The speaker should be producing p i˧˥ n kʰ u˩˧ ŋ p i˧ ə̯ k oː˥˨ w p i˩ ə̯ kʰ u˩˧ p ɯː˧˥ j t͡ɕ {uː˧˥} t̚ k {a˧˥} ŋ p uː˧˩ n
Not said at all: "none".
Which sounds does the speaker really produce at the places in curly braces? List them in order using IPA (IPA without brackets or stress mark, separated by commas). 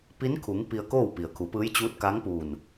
uː˧˥, a˧˥